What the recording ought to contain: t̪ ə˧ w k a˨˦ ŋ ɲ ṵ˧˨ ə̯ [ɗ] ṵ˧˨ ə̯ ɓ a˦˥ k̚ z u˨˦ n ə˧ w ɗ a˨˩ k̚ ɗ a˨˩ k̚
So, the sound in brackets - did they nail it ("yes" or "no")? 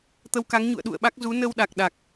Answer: yes